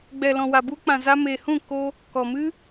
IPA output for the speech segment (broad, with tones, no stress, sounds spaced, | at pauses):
ɡ͡b ɛ˨ l ɔ̃˨ w a˨ b u˧ k͡p ã˨ z a˧ m eː˨ h ũ˦˨ k o˧ | k ɔ˨ m ɨ˦